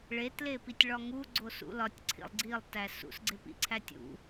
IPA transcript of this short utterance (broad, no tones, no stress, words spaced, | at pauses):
ɭetlepitʲ ɭɒŋu ɡ͡ǀosṵlɒtʲ ǀʰḭlˠɡ͡ǀilˠtæ sṵsɡ͡ǀepḭǀʰætʲ ṵ